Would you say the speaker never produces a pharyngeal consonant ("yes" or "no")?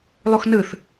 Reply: yes